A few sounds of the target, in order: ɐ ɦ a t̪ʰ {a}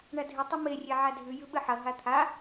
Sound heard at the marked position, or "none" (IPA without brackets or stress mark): a